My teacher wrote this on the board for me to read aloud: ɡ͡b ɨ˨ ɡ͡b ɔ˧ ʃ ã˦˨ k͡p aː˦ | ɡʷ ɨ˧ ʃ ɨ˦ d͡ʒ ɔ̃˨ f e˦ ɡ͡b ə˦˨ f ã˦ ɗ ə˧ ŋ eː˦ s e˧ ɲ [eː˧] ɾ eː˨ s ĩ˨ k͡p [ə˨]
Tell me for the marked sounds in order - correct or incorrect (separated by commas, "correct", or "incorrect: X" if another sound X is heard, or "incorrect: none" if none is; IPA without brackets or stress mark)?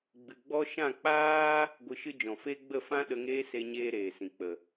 incorrect: eː˦, correct